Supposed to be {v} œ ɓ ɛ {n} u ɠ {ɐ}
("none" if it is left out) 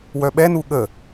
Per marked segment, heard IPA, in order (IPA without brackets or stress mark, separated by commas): w, n, ə